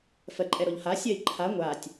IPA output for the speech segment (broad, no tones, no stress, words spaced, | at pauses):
fɜǃʼɛɾɔʎha sʲɜi̯ǃʰa ŋʷaːtʲ